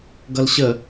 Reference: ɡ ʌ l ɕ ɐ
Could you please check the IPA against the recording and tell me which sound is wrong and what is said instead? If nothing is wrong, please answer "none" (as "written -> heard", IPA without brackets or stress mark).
ɐ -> ə